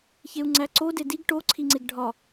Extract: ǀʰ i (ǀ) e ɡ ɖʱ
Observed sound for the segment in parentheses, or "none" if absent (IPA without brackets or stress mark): ŋ͡ǀ